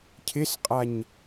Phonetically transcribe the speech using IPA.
cʰ ɪ s qʼ a ɲ

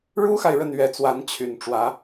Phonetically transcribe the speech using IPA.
ɻ u˥ x a˨ ɪ̯ ɻ ə˥˩ n ɥ ɛ˧˥ t͡s w a˧˥ n t͡ɕʰ y˨˩ n ʈ͡ʂ w ä˧˥

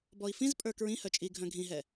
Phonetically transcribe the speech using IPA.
b ɔ i̯ f ĩ z pʼ ə˞ k ɹ ĩ h œ t͡ʃʼ i ɡʱ œ̃ ɡʱ ĩ ɦ ɛ

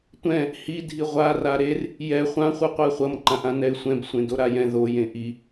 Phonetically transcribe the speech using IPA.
tʷ ɛ̃ | h i dʱ i ʁʷ a r a ɾ e r | j ɛ χʷ ã χʷ ɯ qʷ ɛ χʷ ʌ m ǃ ã ʔ ã n ɛ ɪ̯ sʷ ɛ̃ b sʷ ẽ d o ɾ a j ɛ̃ ð o j ẽ ʔ i

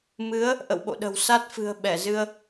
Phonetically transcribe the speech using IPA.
m ɨ˨˦ ə̯ | ʔ ə̰˧˨ w ɓ o̰˧˨ ɗ ə̤˨˩ w s a˦˥ t̚ f ɨ̤˨˩ ə̯ ɓ ɛ˧˩ z ɨ˧ ə̯

